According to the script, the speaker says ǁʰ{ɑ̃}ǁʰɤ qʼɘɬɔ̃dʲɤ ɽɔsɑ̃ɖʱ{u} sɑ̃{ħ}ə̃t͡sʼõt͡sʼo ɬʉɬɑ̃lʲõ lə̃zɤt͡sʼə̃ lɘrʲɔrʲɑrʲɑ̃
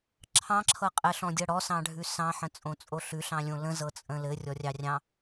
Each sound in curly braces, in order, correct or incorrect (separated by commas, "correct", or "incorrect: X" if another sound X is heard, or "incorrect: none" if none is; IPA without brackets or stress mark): correct, incorrect: ʉ, correct